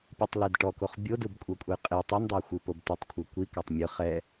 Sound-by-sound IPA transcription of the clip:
pʲ u tˤ l e d ʈ ɔ k o χ bʲ o d ɯ b kʷʼ ɤ kʷʼ ɛ j qʼ i tˤ o n dˤ a xʷ ɯ p o b t̪ i tˤ kʷʰ ɤ kʷ i k a tˤ mʲ ɯ χ ɛ

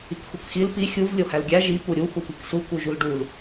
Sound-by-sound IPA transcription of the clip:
i k x u k x i l p i xʲ u v lʲ o h æ l ɡʲ æ ʒ i p u ɾʲ u x u p i k s u k u ʒ u l ɖ u l

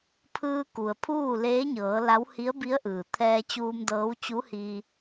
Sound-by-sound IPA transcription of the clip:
pʰ ɯː˧ k u˩ ə̯ pʰ uː˥˨ l eː˧˥ ɲ ɤː˩˧ l a˧˥ w h i˧˥ ə̯ b i˧˥ ə̯ ʔ ɯː˩ t̪ʰ ɛː˧ t͡ɕ uː˧ m d ɤː˧˥ w t͡ɕ u˧˥ h iː˧

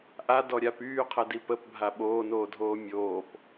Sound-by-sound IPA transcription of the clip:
ʔ a d ɔ ɾʲ a p yː qʰ ɛ d i p ə p bʱ a ɓ oː n oː dʱ oː mʲ oː p

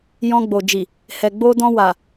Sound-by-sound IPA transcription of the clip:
j ɔ̃˧ ɡ͡b o˨ d͡ʒ i˨ | h ɛ˨ ɡ͡b o˧ d ɔ̃˧ w a˨

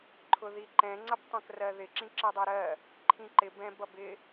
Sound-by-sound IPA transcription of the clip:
ǃʰ ʊ ð i ǃ ɛ̃ ŋ͡ǀ ʌ b tˤ ə̃ k r ɜ ð ɪ ǁ ĩ ǁ ɜ dˤ æ ɾ ɜ | ǃʰ ĩ ǃ ɪ b ɛ̃ b ʌ b ɪ

